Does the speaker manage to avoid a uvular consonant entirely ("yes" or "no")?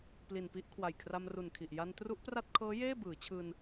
yes